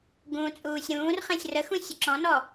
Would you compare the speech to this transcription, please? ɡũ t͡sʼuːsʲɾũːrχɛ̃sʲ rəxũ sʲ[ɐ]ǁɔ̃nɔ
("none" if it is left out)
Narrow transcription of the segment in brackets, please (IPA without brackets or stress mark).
ə